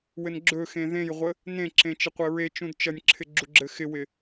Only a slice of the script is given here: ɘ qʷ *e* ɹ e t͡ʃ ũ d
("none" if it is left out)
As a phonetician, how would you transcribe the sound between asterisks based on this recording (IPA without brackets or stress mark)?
ɘ